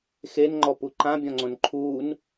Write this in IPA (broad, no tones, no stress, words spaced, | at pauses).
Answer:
xenŋ͡ǃɔpu ǃãbʲɔ̃ŋ͡ǀõn ǃʰuːn